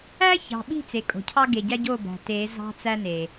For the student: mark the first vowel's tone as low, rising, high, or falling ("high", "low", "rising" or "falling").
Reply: high